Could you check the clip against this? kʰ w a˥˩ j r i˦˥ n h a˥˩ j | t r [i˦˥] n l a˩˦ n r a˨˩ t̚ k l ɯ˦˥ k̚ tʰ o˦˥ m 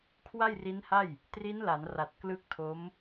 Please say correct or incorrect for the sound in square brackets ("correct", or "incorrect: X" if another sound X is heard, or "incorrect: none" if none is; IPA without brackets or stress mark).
correct